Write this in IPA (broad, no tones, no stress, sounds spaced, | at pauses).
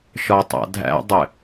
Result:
ʃ ɒ tˤ a̰ dʱ æ̰ dˤ ɘ